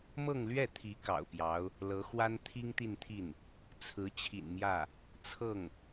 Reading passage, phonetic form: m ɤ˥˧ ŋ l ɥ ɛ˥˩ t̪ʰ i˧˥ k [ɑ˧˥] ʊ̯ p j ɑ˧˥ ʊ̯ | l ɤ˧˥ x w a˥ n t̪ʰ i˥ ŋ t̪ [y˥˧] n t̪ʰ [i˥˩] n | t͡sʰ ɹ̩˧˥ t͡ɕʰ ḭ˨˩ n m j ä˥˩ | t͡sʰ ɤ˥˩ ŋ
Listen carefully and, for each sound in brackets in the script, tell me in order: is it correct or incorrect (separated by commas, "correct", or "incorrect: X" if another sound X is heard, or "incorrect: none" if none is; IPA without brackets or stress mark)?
incorrect: ɑ̰˨˩, incorrect: i˥˧, correct